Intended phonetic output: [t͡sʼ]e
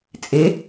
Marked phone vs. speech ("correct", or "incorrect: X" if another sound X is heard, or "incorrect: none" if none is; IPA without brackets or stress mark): correct